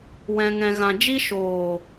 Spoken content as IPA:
w ɛ̃˧ ŋ ɛ̃˧ ɣ ã˧ d͡ʒ i˦ ʃ oː˨

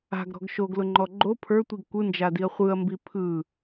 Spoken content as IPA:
a̤ ɡ ɾ ɔ̤ ɡ ʃ o ɡ l ʊ ŋ͡ǃ ɔ ɡ͡ǃ o pʰ ə˞ tʷ i ɡ kʷ ɯ n d͡ʒ a d i ɐ̯ χʷ ɯ ɐ̯ m b i pʰ ɯ

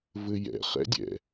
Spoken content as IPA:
v ɘ j ɛ̰ χ ɛ̰ dʲ ɛ̰

